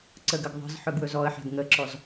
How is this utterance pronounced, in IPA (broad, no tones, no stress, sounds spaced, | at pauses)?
ǀ ə ɡ ə ɡ ðˤ ə̤ z ħ ɵ ɡ w ɵ z ɔ ə̯ ħ a̤ ɡ ŋ ə ǁ ɔ z